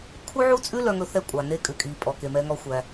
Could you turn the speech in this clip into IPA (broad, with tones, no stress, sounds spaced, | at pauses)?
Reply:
kʰ u˥ ʕ u˥ t͡sʼ ʉ˥ l œ˧ ŋ ɵ˧ θ ɛ˧ kʷʼ ɑ˩ n e˧ kʼ ʉ˩ kʼ i˩ pʼ ɔ˩ k e˩ m ɛ˧ ŋ ɔ˧ xʷ æ˩